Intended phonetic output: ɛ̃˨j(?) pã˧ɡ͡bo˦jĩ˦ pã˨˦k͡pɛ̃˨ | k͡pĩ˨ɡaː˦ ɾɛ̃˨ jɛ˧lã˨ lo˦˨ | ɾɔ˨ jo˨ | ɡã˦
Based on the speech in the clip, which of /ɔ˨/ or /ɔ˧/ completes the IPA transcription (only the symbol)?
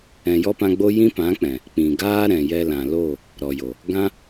ɔ˧